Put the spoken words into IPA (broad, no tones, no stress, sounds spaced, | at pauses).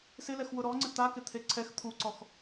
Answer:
s ɪ l ɛ x w ʊ ɾ ɔ ŋ͡ǀ ɪ t̪ a k ɪ t̪ʰ e ǀʰ ɛ x t̪ʰ u ǀ ɔ x